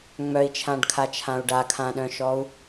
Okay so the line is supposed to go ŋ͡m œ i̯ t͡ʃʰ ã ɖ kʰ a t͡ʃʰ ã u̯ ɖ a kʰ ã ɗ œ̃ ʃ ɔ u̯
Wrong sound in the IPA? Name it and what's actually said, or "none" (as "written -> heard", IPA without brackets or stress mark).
none